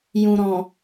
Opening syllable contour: low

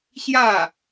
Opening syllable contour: falling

